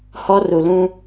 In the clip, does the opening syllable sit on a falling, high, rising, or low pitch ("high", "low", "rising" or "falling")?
high